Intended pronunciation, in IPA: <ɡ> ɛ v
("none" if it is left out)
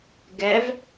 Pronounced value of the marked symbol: ɡ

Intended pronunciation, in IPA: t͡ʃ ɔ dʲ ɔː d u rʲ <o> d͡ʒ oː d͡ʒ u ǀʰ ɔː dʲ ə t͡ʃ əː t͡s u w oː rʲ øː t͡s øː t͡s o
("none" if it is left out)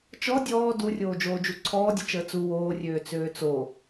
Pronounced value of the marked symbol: oː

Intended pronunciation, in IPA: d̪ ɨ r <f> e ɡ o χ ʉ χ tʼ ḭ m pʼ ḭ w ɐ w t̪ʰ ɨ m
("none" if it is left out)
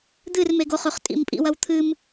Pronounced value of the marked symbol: m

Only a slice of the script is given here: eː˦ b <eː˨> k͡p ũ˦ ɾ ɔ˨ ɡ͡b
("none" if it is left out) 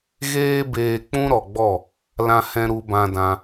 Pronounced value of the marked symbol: eː˧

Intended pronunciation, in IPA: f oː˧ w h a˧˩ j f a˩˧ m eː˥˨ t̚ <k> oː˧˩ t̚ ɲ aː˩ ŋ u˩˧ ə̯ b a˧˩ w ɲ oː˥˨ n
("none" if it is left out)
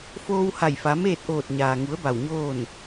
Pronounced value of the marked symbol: ʔ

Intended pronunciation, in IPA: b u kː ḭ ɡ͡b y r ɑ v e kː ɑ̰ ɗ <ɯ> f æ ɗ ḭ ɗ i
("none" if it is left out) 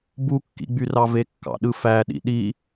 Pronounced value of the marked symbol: ɯ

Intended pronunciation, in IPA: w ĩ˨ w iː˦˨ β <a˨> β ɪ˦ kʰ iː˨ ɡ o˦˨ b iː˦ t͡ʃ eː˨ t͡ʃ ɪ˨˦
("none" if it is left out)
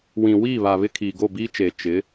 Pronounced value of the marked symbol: a˨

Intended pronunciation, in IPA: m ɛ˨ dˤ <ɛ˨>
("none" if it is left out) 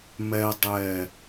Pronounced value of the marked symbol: ɛ˨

